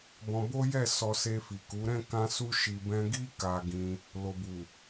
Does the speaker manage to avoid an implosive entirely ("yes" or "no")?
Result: yes